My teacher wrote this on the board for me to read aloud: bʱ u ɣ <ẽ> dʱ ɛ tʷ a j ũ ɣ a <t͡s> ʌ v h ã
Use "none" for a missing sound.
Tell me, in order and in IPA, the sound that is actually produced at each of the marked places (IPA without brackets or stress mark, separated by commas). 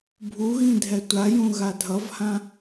ĩ, dʱ